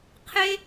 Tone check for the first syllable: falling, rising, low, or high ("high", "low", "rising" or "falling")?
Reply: high